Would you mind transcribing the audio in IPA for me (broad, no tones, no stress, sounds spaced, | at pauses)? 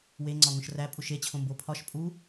w e ŋ͡ǀ ɒ ŋ õ ʃ r æ pʼ u ʃ e t͡ɕʰ õ m b o pʰ ɒ ʃ pʼ u